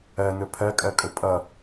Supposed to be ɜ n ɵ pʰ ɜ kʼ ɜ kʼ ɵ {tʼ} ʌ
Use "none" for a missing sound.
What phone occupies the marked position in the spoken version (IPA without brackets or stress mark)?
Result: pʼ